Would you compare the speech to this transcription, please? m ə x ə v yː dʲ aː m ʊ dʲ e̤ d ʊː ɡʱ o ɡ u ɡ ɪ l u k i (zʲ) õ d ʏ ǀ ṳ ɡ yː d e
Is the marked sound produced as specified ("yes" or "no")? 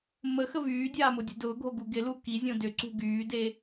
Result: yes